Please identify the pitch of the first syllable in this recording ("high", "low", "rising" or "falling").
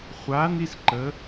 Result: rising